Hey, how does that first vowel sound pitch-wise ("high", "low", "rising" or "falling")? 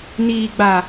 low